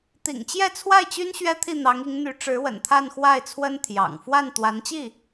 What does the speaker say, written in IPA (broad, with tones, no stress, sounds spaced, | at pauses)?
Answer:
t̪ ḭ˨˩ ŋ t͡ɕ j ɛ˥˧ t͡sʰ w a˥˩ ɪ̯ t͡ɕ y˥ n ɕ ɥ ɛ˥ t̪ʰ i˥˩ n̪ ɑ˧˥ ŋ i˧˥ ŋ n̪ y˧˥ ʈ͡ʂ ɻ̩˧˥ w ə̰˨˩ n t̪ʰ a˥˧ n x w a˥˩ ɪ̯ t͡sʰ w ə˥ n t̪ʰ j ɑ̰˨˩ ŋ f w a˥˩ n t̪ w a˧˥ n t͡ɕ i˥˩